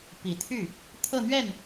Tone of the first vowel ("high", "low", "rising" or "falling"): low